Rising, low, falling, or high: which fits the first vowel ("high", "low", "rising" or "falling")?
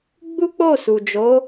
high